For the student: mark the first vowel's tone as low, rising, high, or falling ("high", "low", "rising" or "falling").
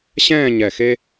falling